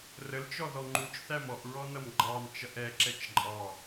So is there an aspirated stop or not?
no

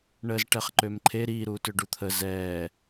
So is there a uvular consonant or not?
yes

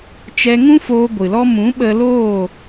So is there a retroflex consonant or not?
no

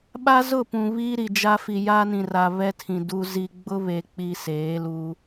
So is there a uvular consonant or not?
no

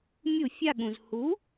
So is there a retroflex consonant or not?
no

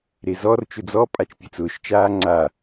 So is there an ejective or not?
yes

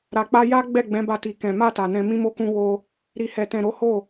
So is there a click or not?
no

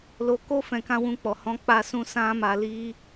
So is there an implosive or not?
no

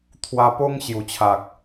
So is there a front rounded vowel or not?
no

